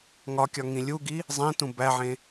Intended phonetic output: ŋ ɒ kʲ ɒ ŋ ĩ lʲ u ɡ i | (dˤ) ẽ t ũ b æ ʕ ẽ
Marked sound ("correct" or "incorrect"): incorrect